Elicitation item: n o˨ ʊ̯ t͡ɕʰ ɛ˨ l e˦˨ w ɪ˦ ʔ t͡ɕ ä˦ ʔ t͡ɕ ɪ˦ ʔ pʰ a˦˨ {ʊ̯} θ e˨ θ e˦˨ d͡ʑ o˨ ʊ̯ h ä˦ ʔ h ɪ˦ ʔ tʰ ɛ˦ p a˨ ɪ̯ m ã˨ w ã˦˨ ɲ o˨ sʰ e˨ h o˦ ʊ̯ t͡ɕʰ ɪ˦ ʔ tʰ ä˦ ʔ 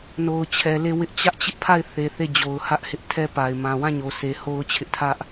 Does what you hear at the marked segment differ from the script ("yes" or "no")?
yes